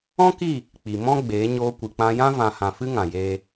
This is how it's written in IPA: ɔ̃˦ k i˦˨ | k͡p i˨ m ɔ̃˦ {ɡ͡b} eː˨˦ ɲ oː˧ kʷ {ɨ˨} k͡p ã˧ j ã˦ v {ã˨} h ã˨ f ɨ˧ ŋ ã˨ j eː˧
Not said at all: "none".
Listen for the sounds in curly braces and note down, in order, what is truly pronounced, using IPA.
ɡ͡b, ɨ˨, ã˨

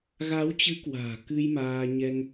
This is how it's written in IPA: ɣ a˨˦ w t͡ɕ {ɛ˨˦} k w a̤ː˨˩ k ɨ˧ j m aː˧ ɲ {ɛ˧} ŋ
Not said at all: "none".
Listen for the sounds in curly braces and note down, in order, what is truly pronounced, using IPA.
ɨ˨˦, ɛ˧

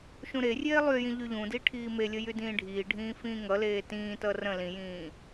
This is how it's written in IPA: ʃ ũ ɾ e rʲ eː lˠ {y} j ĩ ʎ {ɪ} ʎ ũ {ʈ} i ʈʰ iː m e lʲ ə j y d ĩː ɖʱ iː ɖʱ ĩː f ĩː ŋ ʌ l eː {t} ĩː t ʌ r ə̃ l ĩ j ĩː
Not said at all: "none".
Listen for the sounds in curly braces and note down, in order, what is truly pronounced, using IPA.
y, y, d, t

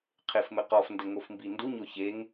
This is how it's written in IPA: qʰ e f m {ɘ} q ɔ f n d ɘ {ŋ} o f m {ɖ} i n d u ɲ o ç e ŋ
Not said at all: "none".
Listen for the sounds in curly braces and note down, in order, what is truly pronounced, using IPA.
ɘ, ŋ, b

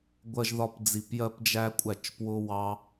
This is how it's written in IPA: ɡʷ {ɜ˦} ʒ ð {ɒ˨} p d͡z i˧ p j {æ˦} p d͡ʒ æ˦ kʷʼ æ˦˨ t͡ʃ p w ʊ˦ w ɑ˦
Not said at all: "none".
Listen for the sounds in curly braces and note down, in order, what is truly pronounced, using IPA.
ɜ˦, ɒ˦, ɜ˦

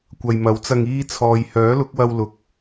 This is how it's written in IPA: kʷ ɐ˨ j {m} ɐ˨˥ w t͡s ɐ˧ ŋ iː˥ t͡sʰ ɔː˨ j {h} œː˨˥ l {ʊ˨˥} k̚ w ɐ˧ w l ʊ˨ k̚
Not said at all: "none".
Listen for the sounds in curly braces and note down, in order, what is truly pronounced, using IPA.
m, h, ʊ˨˥

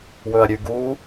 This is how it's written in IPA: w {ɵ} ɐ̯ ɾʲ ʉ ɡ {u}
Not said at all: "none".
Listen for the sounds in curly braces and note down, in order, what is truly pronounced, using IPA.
ɵ, u

